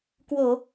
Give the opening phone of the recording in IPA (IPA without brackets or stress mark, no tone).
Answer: k